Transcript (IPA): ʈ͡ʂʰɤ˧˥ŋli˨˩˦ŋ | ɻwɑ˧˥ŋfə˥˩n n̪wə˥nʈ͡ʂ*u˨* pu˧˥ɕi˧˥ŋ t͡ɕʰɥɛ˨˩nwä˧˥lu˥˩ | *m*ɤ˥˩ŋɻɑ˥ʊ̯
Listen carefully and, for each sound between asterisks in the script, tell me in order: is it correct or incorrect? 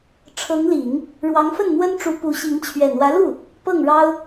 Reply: incorrect: u˧˥, incorrect: p

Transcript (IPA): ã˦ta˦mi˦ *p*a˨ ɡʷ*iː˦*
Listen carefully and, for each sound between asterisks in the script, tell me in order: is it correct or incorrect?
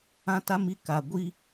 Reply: incorrect: k, correct

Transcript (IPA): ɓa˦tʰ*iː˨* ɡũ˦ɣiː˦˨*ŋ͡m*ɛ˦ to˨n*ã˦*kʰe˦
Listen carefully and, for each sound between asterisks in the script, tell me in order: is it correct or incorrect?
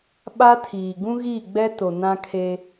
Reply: correct, incorrect: ɡ͡b, correct

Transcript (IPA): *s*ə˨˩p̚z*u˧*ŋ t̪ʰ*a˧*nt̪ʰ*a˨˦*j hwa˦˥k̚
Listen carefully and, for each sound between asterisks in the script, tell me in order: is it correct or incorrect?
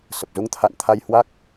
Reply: correct, correct, incorrect: a̰˧˨, incorrect: a˧

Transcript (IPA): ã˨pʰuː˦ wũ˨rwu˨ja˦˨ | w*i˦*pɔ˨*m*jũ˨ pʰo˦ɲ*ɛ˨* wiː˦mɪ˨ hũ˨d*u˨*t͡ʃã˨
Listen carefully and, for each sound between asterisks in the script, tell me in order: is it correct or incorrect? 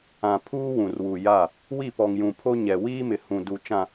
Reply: incorrect: i˦˨, incorrect: ŋ, correct, correct

